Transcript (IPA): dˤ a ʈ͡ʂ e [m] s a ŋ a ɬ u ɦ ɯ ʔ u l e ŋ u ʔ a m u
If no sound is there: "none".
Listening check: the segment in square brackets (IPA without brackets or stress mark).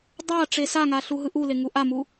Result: none